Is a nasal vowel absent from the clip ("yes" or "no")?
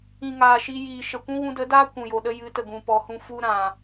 no